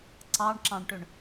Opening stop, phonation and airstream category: click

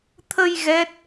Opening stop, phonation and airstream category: aspirated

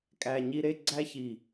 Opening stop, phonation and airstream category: ejective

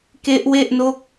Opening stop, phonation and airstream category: plain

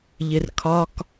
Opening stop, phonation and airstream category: aspirated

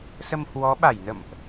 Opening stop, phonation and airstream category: implosive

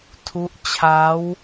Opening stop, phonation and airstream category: aspirated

